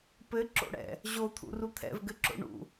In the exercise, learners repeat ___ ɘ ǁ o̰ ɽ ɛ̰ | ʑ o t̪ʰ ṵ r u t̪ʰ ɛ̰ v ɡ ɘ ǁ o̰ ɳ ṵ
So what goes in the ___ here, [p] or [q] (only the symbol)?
p